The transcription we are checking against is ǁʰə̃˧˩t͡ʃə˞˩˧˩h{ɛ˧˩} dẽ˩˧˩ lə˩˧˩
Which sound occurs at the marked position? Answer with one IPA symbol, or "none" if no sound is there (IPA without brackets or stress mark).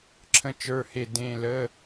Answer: e˧˩